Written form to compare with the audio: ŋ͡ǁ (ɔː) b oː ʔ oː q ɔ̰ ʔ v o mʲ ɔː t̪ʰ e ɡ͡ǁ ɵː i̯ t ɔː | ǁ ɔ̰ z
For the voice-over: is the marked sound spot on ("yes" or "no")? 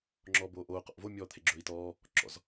yes